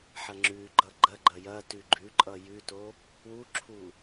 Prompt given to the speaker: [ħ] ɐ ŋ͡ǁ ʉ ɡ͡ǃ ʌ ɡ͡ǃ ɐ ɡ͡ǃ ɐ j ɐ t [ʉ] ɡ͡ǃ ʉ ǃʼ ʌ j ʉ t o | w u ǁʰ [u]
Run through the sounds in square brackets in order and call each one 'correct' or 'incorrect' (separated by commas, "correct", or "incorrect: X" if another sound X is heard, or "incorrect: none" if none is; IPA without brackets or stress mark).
correct, correct, correct